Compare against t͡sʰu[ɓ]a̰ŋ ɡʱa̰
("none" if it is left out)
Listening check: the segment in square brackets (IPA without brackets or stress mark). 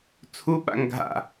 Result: ɓ